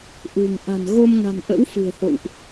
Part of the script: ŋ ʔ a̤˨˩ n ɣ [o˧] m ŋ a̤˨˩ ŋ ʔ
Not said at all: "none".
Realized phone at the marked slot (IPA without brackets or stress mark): o˧